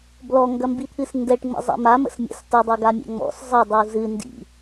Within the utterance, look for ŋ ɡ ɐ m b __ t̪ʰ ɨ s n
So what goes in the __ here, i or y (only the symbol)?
i